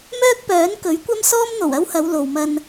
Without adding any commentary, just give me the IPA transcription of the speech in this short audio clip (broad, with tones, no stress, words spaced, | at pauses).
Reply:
mœː˥k̚pœː˨˥n kɵ˨˥ɥkʷɐ˥m sɔː˥mn̪o˨˩wɐ˥whɐ˨˧w lo˨wmɐ˧n